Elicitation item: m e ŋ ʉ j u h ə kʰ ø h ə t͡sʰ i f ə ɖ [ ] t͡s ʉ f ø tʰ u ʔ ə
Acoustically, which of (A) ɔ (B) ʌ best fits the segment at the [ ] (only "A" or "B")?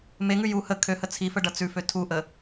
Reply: B